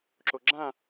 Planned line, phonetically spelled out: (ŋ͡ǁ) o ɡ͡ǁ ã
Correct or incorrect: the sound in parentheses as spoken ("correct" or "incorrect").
incorrect